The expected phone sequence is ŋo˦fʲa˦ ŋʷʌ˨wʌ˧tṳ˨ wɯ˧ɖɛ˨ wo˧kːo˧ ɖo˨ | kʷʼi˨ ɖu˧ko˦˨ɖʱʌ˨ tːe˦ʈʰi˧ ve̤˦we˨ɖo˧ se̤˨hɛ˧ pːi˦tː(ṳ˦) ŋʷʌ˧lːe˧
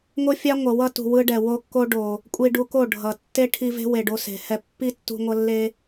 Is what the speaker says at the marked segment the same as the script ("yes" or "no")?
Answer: no